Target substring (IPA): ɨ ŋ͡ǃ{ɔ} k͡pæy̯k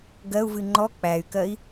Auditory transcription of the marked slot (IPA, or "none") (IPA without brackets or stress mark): ɔ